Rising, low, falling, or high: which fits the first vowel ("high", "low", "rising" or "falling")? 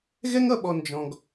high